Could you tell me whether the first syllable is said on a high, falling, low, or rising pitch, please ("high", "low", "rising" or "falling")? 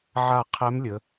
falling